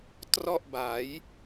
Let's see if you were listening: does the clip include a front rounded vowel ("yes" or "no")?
no